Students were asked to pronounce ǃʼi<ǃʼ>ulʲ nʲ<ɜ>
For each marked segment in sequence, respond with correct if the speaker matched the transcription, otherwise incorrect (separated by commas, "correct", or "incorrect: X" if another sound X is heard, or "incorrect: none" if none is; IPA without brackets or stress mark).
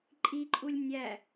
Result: correct, incorrect: æ